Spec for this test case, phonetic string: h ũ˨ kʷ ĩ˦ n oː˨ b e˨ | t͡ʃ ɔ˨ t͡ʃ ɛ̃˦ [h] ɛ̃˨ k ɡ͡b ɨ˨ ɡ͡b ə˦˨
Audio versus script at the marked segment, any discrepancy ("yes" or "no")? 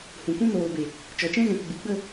yes